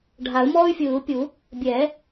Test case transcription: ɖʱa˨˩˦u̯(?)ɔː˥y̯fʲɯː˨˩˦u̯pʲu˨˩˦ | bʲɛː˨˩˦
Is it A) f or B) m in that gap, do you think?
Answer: B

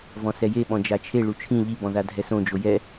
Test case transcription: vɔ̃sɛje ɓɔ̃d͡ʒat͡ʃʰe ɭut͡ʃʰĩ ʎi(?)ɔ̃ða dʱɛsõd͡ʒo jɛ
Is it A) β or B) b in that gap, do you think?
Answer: B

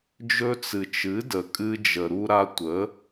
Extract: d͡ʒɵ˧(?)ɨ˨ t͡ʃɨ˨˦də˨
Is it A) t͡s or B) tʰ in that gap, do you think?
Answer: A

